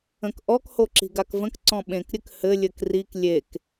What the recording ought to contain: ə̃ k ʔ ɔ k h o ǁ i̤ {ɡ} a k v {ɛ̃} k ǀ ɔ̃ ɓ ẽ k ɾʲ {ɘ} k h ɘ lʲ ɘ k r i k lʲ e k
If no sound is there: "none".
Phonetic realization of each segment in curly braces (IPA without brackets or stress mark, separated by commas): ɡ, ə̃, ɘ